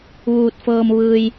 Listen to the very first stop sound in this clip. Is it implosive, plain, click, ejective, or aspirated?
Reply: plain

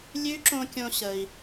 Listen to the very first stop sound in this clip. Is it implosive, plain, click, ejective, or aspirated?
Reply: click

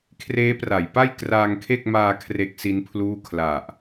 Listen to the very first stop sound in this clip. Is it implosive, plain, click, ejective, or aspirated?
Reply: aspirated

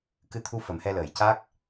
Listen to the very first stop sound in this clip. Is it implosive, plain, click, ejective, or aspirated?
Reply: plain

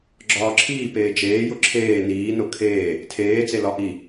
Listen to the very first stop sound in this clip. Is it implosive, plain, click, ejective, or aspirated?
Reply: click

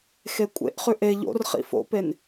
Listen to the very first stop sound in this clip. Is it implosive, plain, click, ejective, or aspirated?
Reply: ejective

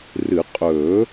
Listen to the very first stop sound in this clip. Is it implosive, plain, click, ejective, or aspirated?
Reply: ejective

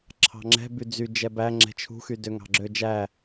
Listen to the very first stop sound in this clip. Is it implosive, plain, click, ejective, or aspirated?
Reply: click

